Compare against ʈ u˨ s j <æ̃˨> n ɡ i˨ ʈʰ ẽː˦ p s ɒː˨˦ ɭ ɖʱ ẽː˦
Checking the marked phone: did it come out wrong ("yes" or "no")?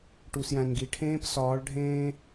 no